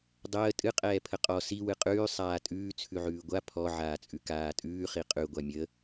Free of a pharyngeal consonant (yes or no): no